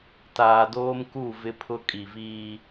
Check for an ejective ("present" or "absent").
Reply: present